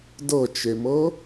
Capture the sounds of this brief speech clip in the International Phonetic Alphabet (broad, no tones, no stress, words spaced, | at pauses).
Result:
dɤt͡ʃemɤ